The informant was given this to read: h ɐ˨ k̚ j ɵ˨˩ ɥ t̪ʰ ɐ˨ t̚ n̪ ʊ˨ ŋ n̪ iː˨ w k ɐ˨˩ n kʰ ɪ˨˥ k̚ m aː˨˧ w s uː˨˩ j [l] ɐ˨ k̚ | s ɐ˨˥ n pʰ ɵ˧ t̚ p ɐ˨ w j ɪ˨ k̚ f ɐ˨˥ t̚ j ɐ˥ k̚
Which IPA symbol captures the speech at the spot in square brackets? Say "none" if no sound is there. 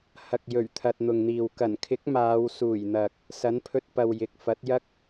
n̪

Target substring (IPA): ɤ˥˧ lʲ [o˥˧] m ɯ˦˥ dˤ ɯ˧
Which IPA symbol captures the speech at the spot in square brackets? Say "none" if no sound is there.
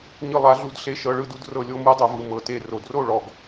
o˥˧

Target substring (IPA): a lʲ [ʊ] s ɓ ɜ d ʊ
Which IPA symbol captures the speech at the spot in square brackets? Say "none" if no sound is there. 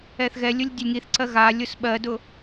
ʊ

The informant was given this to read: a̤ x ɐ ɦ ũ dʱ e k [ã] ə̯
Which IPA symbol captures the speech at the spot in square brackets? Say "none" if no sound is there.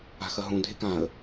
ã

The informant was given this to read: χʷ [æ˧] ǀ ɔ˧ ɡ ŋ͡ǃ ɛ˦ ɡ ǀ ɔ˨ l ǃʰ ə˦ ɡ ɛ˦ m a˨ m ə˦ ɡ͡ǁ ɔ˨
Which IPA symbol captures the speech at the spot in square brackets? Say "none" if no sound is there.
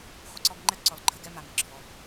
ə˧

